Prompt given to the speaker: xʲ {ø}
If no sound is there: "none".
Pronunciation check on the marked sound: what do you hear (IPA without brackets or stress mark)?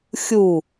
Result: u